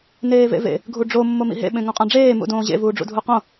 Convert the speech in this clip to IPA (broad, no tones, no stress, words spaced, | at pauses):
neːvḛvḛ | ɡʱuɖ͡ʐo mːomḭɦḛ ɓẽŋõqʼãɖ͡ʐeː mṵdõːʑḛ vuːɖ͡ʐṵdʱuqõ